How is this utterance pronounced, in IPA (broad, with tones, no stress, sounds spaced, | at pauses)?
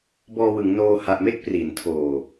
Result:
b ɔː˧ w ɯ˩˦ ŋ n oː˧ h a˨˩ ʔ m e˥˩ k̚ p r i˩˦ n tʰ oː˨˩